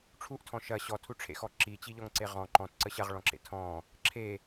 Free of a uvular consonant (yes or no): no